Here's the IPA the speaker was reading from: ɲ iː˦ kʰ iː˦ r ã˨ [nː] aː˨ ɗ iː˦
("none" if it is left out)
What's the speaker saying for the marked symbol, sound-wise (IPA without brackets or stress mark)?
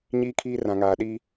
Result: ŋ